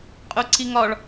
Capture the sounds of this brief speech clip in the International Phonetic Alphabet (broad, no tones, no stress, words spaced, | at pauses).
qʼʊǀiŋɒɭ